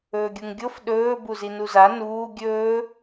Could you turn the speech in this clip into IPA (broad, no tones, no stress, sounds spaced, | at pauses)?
ɵː ɡʲ u ŋ ɡʲ o f ɗ ɵː b u z i n u z a n uː ɡʲ ɵː